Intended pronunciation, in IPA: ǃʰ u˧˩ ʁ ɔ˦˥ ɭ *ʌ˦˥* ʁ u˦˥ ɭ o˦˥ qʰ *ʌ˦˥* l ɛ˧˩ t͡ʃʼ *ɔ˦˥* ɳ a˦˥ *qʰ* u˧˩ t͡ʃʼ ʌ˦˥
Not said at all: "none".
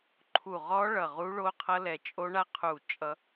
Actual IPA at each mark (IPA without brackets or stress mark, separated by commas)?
ʌ˧˩, ʌ˦˥, o˦˥, qʰ